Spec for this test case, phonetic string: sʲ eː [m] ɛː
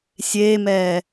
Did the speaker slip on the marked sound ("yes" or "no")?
no